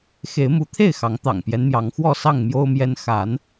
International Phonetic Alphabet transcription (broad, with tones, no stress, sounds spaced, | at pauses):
x e˨˦ ɪ̯ m u˨˦ t̪ʰ e˥˨ ɪ̯ x ɑ˨˦ ŋ t̪ ɑ̰˨˩ ŋ p j ɛ˦ n m j ɑ˨˦ ŋ x w ɔ˥˨ s ɑ˥˨ ŋ m j o˦ ʊ̯ m j ɛ˦ n x a˨˦ n